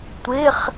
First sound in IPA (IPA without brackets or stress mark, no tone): tʷ